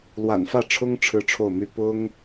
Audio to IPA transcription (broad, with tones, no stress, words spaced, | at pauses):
lwa̰˨˩nfä˥˩ʈ͡ʂʰʊ˥ŋ ʈ͡ʂʰɻ̩˥ʈ͡ʂʰo˥˩ʊ̯my˥ pʊ˥ŋ